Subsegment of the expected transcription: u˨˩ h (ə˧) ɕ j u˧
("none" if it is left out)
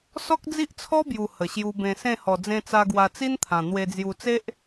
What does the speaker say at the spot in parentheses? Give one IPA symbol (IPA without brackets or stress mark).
ə˨˩